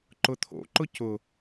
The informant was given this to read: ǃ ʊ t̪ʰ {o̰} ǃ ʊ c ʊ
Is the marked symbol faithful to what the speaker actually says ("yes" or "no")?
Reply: yes